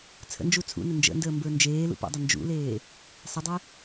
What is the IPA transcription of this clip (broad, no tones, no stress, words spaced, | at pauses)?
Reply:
t͡sʰə̰nd͡ʒu t͡sʰṵnə nd͡ʒə̰ndəː mbə˞nd͡ʒeːlṵ pə̰dˤə nd͡ʒṵleː | sˤədˤe